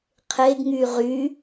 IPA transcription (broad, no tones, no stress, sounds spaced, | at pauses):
qʰ e ɡ ŋ y ʁ y